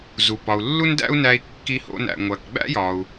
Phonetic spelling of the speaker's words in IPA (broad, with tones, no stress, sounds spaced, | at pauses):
z u˩ p ɒ˩ u̯ lː u˥ n d æ̰˥ u̯ n æ˧ i̯ kː i˧ h o̰˧ n æ̰˩ ŋʷ æ˩ k ɡ͡b æ̰˥ j ɒ˩ u̯